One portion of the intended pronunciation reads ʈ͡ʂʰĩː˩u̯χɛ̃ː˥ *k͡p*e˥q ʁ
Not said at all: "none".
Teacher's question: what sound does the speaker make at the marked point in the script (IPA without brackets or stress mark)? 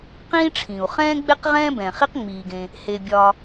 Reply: ɡ͡b